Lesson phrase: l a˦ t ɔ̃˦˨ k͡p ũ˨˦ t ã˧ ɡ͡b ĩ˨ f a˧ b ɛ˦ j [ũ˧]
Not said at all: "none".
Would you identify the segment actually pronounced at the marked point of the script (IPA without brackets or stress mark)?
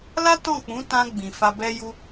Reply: u˧